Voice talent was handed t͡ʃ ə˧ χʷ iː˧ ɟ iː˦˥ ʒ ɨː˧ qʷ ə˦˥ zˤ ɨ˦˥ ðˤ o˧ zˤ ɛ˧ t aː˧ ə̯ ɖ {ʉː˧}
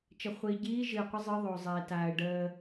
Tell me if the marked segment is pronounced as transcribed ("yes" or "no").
no